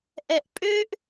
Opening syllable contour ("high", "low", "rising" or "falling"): low